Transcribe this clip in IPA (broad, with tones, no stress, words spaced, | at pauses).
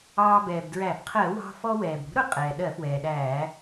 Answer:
ɑː˧bɛː˩bdɹæ˧˩˧b qʰɜ˧˩˧wɑ̤˧ fɔ˧wɛː˩bɾṳ˨˥ ɾʊ˨˥ qʼɛː˩ ɗɜ˧˩˧fwɛː˩ɗæː˧˩˧